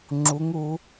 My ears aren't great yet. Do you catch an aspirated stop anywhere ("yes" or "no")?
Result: no